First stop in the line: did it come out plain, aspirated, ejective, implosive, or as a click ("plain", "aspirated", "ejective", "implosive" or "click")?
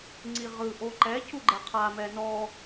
click